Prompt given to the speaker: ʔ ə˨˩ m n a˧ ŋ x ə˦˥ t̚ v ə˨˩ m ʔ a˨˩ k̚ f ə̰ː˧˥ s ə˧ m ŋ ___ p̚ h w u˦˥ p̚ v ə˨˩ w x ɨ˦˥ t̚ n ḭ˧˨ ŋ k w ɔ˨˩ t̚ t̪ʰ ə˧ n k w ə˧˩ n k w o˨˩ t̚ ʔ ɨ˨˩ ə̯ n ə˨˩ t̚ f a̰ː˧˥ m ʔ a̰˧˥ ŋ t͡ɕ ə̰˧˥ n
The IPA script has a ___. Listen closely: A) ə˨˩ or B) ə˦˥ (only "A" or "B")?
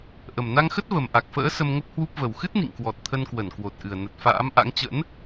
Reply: B